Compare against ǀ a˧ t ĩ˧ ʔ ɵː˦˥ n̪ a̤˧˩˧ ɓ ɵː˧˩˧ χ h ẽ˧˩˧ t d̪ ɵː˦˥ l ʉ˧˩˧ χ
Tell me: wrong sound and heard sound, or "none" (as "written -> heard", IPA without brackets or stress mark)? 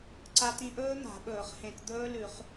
none